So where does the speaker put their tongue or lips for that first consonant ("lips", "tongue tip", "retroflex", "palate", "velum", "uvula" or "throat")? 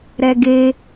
tongue tip